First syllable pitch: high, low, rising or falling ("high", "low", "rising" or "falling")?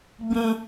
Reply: high